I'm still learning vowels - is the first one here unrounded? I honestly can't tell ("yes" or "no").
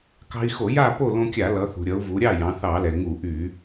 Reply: yes